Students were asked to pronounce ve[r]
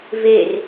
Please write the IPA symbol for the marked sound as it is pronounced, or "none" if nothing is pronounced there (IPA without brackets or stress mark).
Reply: r